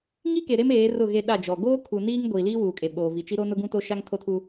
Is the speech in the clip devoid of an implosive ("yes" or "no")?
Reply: no